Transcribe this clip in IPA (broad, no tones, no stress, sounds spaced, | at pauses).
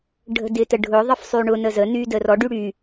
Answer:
ɖʱ ə̤ d ɪ t ə ɖʱ ʊ ðˤ ə f sˤ y ɳ ʊ n ə z ə n y d ə r ɔ ɖ y ɽ y